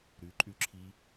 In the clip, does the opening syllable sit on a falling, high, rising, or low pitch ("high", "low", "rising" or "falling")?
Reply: rising